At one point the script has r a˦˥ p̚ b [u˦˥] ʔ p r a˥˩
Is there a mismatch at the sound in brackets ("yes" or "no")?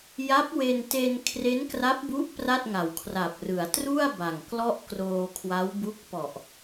no